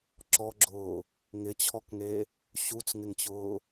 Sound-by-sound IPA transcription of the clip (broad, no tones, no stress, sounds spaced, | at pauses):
ǁ ɔ ɡ͡ǁ ʊː | ŋ ɪ t͡ɕʰ ɔ k ŋ e | ɕ u t͡s ŋ ɪ ŋ t͡ɕ ʊː